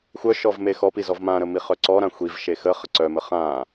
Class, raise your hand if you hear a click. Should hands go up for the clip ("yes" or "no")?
yes